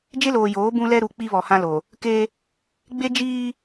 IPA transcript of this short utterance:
d͡ʒe˦loː˨joː˨˦ bũ˦lɛ˦ɾu˨ k͡pi˦βɔ˨hã˦lo˨ | ke˦ | ɡ͡be˦d͡ʒiː˦

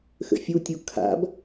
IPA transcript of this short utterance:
xə̰fʲutʲu kʰa̰b

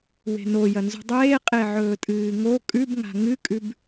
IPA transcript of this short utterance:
we̤nojɐ nzṳdˤeːqʼe ʕɵːtʼɨːŋo kʼʉbŋa̤ ŋɨkʼʉb

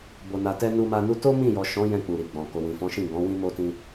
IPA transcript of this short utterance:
bo˨na˨tɛ˧ nu˧ma˧ nu˧to˦mĩ˦˨jɔ˨ ʃɔ̃˨˦ jɛ̃˧ k͡pu˨ɾi˨ɡ͡bɔ̃˨ ko˨wĩ˨fɔ̃˨˦ʃĩ˦˨ ɡɔ̃˨˦ wĩ˦ mo˦tĩ˧

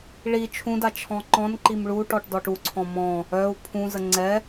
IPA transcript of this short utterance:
ɭi t͡ʃʰũda t͡ʃʰɔ̃ǃɔ̃nǃim ɭuʈɔʈ dɔʈuǀʰɔ̃ mɔ̃ | œu̯ pʰũzə ŋ͡ǀɛ

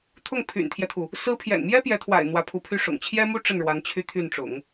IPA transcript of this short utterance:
t̪ʰʊ˥˩ŋpʰy̰˨˩nt̪ʰjɛ˦t̪ʰu˩ | sɹ̩˥ pʰjɛ̰˨˩nmjɛ˥pjɛ˧˥t̪ʰwa̰˨˩ɪ̯ n̪wä˧˥pʰu˧˥pʰy˥˩ ʂʊ̰˨˩ŋt͡ɕʰjɛ˥mu˥ ʈ͡ʂə˥˩nɻwa˧˥n t͡ɕʰy˥t̪ʰy˥˩nʈ͡ʂʊ̰˨˩˦ŋ

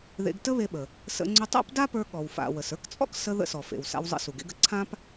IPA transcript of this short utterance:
ðḛ˧ɡtə˥βe˧ɓə˩ | sə̰˧ ŋ͡ǀʏ˧tˤa̰˥pda˥pə˞˧ ɠɔ˩wfa̰˩ wə˩sə˞˥kt͡sʼɔ̰˥ksə˧ ðə̰˧sɔ˩fḛ˩w sa̰˧wzˤə̰˧su˩ ɡḛ˧ɡ ə˩ ǀʰã˥p

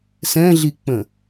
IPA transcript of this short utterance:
sɛ̃ɮik͡pə̃

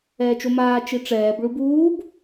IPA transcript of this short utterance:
ɛːt͡ʃomaː t͡ʃiʈ͡ʂɛːb ɭubuːb

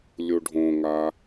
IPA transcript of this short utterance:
lʲuɖʱõŋa

